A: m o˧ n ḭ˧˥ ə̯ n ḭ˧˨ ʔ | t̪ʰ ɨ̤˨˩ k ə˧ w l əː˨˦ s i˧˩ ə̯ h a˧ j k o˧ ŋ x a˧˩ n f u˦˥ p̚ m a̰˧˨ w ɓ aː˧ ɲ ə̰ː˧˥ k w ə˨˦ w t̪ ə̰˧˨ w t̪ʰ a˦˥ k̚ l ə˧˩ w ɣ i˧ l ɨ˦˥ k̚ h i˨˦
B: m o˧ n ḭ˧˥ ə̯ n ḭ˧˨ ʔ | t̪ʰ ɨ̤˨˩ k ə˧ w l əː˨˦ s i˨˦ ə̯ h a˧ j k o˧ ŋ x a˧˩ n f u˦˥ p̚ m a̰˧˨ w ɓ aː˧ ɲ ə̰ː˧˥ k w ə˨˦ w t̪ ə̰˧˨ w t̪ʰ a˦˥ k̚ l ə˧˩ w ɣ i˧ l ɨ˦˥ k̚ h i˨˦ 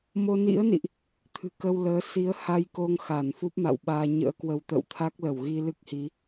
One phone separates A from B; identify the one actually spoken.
B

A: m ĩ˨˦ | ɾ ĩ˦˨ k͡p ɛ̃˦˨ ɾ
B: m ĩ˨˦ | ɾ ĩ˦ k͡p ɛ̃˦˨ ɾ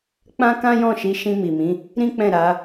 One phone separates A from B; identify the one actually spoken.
B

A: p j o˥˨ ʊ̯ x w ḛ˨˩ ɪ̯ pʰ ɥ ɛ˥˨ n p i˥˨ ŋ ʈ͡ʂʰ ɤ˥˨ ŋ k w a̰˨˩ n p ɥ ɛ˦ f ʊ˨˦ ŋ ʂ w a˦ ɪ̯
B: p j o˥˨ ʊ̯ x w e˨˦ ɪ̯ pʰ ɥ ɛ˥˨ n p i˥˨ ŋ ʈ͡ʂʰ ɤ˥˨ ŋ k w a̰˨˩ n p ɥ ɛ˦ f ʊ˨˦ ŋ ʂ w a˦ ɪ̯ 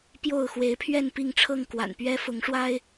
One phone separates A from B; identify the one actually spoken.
B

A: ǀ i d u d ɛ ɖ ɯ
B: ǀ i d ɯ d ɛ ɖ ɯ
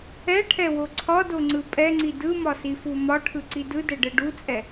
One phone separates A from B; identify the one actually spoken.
B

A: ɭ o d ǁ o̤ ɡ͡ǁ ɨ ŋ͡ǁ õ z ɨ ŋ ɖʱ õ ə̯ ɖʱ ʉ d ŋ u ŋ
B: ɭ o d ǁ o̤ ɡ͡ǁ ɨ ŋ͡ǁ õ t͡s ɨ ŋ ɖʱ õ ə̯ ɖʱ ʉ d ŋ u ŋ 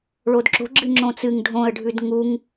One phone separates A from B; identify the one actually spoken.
B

